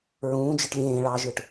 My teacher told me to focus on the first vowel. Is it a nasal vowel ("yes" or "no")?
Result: yes